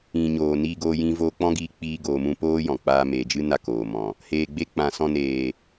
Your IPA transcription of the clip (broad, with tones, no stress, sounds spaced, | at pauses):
ĩ˨ ɲ oː˨ n iː˧ ɡ oː˧ j ĩ˧ v oː˧ k͡p ɔ̃˦ ɡ iː˧ k͡p iː˧ ɡ oː˧ m ũ˦ p oː˦ j ɔ̃˨ k͡p aː˧ m eː˨ d͡ʒ ɨ˦ n a˧ k oː˨ m ɔ̃˨ | h eː˨ ɡ͡b e˧ k͡p ã˨ s ɔ̃˧ n eː˨